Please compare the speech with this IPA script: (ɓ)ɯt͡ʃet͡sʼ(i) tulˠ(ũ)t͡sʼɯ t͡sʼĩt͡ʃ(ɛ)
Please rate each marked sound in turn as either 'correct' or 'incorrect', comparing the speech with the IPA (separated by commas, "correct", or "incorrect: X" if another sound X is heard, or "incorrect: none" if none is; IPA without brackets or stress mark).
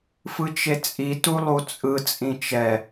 incorrect: f, correct, incorrect: u, correct